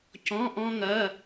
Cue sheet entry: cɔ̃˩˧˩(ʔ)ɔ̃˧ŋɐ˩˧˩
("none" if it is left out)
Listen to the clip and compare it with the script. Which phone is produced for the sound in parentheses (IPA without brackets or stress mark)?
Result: ʔ